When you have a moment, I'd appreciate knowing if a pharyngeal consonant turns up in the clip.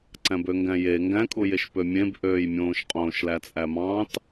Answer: no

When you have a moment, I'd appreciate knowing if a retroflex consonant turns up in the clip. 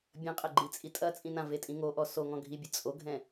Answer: no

